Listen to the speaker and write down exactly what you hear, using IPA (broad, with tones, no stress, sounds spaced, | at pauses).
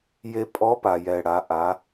j e˧ pʼ ɔ˧˥ p a˩ j ɛ˩ ɽ a˩˧ ʔ a˩˧